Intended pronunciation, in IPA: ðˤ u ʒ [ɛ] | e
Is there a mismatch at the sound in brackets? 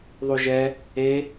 no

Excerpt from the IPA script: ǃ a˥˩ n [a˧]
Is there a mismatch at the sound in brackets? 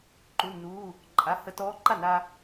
yes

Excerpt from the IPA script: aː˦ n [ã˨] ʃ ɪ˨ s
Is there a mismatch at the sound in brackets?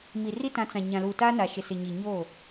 yes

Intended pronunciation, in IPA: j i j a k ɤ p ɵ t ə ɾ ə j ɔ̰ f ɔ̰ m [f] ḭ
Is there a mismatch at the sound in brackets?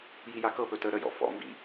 yes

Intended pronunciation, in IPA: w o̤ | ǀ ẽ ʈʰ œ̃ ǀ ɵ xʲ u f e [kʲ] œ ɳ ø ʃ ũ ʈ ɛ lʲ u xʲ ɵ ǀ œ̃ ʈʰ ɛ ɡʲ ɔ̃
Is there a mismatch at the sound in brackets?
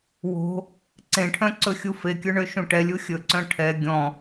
no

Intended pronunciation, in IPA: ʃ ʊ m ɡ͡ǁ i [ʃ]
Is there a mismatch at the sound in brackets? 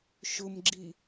yes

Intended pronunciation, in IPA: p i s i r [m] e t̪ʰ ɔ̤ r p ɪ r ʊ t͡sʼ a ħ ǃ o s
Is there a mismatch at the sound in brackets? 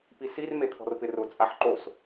no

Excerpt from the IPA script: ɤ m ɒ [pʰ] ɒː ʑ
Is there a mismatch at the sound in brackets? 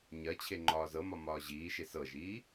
yes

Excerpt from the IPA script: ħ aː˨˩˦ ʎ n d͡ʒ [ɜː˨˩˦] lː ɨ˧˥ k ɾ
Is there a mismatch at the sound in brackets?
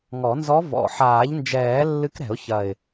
yes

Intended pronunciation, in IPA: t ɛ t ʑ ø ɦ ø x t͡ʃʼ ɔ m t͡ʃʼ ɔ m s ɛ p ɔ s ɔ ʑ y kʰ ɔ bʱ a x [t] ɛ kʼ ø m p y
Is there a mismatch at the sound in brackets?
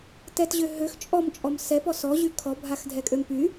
yes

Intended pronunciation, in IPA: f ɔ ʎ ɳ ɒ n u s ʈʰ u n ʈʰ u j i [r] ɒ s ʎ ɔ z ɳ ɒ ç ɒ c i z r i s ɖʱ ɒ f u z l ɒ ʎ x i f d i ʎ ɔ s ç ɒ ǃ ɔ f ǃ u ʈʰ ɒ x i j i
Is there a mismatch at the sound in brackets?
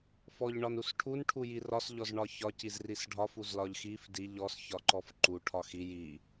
no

